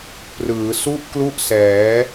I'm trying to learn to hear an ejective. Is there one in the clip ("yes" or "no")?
no